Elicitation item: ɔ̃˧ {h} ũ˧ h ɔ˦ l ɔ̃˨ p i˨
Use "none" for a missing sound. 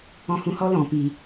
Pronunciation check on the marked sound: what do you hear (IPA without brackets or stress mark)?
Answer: h